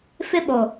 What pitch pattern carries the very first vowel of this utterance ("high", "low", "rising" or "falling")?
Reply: high